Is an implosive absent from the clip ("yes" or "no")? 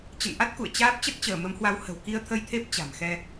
yes